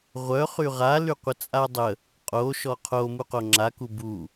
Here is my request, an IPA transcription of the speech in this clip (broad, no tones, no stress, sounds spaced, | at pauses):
ʁʷ œ χ y ʁ a l y qʷ ə t͡sʼ a dˤ ə | qʼ o ʃ ɔ qʰ o m u q o ŋ͡ǁ a k u b u